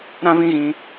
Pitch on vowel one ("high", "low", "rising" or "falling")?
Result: high